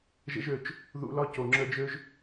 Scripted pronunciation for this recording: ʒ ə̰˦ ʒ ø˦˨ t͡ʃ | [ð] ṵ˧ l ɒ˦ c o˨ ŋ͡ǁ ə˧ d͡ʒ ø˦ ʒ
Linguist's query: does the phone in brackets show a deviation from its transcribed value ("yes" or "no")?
no